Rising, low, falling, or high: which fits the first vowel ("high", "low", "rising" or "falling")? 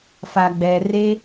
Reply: low